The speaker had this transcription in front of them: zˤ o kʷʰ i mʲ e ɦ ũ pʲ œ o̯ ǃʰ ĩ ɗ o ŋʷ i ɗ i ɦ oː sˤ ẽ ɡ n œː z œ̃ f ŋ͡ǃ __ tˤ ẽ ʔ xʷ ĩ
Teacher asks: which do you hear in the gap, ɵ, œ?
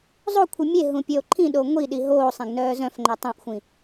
œ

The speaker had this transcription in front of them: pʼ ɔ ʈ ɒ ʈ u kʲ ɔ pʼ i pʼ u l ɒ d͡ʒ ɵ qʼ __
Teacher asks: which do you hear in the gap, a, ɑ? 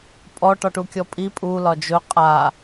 a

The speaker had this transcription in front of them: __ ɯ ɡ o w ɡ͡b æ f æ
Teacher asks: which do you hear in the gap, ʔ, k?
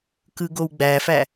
k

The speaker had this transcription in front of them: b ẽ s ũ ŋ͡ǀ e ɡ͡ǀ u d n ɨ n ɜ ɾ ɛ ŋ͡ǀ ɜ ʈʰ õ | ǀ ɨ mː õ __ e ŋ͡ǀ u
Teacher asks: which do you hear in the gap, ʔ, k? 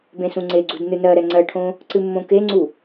k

